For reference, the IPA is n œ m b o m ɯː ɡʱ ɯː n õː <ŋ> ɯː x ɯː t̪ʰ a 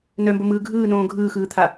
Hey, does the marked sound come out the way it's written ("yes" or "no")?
no